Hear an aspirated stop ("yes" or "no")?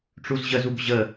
no